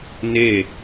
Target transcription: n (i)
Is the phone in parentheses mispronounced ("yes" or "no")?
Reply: yes